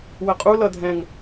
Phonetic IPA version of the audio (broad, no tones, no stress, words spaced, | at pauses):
wəqʼu lʌdʱɛ̃ŋ